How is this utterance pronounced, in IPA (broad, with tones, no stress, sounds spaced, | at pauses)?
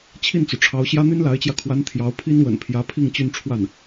t͡ɕʰ i˥˩ n t͡s u˩ ʈ͡ʂʰ ɑ˧˥ ʊ̯ ɕ j ä˥ n̪ y˥ n l a˧˥ ɪ̯ t͡ɕ j ä˧ kʰ w a˧˥ n t̪ʰ j ɑ˧˥ ʊ̯ pʰ i˥ n w ə̰˨˩ n pʰ j ä˧˥ pʰ i˥˧ ŋ t͡ɕ y˥˧ n ʈ͡ʂʰ w a˥˩ n